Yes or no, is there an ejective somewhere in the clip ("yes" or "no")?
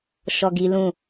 no